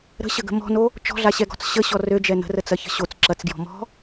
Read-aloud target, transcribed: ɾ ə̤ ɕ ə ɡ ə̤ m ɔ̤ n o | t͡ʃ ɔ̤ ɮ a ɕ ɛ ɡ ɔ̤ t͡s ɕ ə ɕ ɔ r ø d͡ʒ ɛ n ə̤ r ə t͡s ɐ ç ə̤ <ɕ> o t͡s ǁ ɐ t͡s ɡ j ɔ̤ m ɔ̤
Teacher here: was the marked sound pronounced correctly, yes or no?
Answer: yes